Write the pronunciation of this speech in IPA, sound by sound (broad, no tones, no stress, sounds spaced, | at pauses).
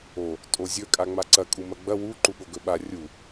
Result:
o | tʼ o zʲ ɵ kʼ a ŋ͡m a ǀ ɐ kʼ u m ɐ ɡ͡b ɐ w u ǃ u ɠ o ɡ ɵ ɓ a rʲ u